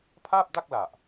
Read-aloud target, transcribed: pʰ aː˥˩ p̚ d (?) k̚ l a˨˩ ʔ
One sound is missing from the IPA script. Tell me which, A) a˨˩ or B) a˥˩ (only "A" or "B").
B